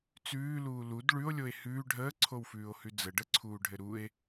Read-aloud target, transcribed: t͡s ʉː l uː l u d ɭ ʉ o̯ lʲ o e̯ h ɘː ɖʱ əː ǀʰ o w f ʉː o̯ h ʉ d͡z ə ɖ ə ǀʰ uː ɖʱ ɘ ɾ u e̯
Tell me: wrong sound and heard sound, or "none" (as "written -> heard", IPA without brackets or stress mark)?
ɘː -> ʉː